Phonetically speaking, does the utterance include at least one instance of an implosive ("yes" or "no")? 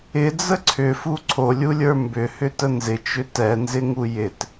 no